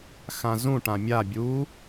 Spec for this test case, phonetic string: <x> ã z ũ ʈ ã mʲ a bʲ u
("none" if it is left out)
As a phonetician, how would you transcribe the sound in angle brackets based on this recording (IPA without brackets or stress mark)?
x